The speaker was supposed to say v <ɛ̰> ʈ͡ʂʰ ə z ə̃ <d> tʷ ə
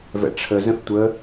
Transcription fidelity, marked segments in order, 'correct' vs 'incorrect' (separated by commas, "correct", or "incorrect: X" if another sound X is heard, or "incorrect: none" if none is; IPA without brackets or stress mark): correct, incorrect: θ